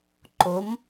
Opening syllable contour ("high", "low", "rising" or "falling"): rising